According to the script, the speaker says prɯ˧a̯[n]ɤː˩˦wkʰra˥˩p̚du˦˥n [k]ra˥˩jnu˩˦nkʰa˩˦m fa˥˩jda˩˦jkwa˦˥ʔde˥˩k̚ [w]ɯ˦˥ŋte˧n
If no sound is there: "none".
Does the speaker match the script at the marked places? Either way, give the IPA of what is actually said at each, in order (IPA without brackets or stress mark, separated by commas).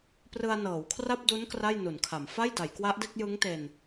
n, k, j